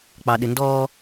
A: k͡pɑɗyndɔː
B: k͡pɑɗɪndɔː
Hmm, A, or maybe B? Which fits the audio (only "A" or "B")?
B